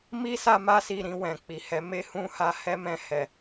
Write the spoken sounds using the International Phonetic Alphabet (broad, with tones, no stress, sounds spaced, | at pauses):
m i˦ s a˦ m a˦ s i˧ ɾ ĩ˧ w ɛ̃˨ k͡p i˨ h ɛ˨˦ m e˦ h ũ˦ h a˧ h ɛ˦ m ɛ̃˧ h ɛ˨